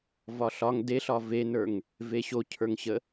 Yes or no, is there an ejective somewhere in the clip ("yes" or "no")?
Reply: no